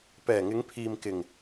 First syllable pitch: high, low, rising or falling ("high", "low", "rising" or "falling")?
low